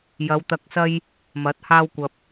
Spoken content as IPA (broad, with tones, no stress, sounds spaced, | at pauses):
j ɐ˨˧ w t̪ ɐ˧ k̚ s ɐ˥ j | m ɐ˨˥ t̚ h aː˥ w kʷ ɐ˧ p̚